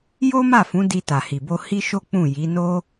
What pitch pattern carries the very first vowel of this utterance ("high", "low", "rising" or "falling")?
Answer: high